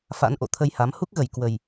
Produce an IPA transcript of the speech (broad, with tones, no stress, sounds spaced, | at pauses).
f a̰˧˥ n ʔ o̰˧˨ t̪ʰ ə˧ j h a˨˦ m h u˦˥ k̚ ɣ ə˧˩ j k w ə˨˩ j